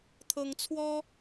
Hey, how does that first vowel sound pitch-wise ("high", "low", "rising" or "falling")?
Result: high